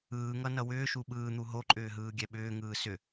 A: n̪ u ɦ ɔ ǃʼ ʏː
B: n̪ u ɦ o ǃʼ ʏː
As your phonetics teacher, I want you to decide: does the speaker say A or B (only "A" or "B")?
B